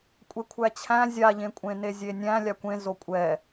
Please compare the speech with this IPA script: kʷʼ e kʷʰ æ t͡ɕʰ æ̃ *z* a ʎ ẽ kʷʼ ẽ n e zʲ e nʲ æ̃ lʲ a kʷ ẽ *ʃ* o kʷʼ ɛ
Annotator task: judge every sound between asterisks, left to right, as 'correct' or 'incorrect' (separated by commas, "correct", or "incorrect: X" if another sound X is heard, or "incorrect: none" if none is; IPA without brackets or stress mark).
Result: incorrect: zʲ, incorrect: z